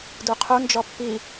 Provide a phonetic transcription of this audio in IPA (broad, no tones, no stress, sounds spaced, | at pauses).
d u qʰ u n d͡ʒ ɔ pː i